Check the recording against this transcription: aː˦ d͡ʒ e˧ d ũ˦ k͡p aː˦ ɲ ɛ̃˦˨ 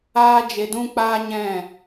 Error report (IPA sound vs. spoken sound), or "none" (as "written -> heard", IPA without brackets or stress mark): none